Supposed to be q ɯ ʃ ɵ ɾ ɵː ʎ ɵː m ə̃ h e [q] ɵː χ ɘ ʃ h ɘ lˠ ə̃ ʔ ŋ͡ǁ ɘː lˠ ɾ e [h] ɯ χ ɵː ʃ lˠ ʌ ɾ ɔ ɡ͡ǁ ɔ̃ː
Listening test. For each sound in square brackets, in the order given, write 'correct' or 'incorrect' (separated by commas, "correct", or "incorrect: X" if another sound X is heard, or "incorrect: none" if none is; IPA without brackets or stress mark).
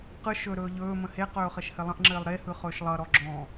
correct, correct